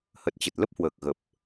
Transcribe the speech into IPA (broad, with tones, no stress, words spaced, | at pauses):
hə˨˩t̚t͡ɕə˨˩t̚lə˦˥p̚hwəː˨˩k̚ ɣə˨˩p̚